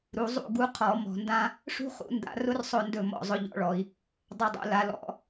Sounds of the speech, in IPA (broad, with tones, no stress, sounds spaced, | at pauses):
ɾ u˩˧ zˤ ṵ˥˨ ɡ u˧˥ qʰ ɔ˧˩˧ m ɔ̤˧˩˧ n d ã˥ | ʂ ṳ˥ χ ṵ˧˥ n d a̰˧˥ r ʊ˥ r sˤ ɵ˥˨ n d ɵ˥˨ m ɔ̰˥˨ zˤ ʊ˧˥ ʎ ɔ̰˧˥ ɭ ɔ˩˧ i̯ | dˤ a˥ dˤ ṵ˧˥ l a˧˥ l ɔ̰˧˥